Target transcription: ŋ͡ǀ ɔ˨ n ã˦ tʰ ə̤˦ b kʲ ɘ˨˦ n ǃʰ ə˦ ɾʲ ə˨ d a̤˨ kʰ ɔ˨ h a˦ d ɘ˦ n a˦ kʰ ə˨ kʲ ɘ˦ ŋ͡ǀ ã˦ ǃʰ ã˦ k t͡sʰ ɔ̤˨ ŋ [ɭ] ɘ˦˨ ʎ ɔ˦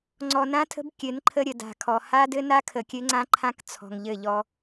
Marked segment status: incorrect: ʎ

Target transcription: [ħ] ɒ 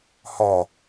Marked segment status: incorrect: h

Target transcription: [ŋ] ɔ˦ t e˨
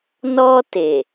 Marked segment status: incorrect: n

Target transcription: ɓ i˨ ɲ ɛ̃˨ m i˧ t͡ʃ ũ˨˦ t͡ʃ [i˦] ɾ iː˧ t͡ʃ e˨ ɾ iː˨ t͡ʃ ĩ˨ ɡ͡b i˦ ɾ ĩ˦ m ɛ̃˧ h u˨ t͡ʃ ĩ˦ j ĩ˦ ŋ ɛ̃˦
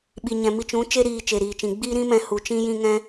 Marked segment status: incorrect: e˦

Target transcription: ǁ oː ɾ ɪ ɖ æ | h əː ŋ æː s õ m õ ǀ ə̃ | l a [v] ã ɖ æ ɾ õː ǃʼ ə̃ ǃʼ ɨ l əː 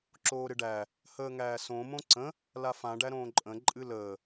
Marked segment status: incorrect: f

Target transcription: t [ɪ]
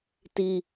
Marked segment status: incorrect: i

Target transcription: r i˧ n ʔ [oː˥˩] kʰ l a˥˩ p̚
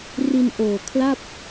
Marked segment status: incorrect: oː˨˩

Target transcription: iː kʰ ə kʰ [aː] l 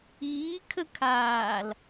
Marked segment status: correct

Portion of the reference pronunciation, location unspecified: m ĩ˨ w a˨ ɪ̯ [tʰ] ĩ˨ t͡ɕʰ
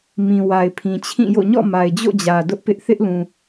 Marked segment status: incorrect: pʰ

